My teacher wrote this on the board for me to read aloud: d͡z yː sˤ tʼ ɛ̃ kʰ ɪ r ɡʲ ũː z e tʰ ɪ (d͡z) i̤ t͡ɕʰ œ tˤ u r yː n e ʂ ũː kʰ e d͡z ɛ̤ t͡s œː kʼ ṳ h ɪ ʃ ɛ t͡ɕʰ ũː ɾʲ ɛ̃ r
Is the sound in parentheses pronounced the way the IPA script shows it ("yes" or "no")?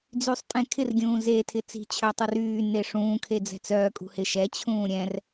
no